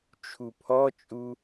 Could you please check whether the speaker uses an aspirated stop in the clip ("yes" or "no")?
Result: yes